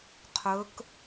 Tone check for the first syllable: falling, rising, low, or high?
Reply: rising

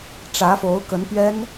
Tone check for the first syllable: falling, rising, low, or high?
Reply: rising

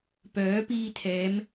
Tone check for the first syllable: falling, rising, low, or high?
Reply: rising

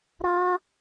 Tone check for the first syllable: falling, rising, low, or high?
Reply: high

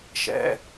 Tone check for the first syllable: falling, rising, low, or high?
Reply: high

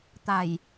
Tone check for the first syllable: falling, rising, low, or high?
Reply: low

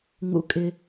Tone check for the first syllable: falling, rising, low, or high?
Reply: low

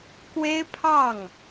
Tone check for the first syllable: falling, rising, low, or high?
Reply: high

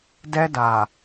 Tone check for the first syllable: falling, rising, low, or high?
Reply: high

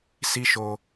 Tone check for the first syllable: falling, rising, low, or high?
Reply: high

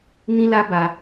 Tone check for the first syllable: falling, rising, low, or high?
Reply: high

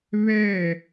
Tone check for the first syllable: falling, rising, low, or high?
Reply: falling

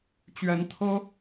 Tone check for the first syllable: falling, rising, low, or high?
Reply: rising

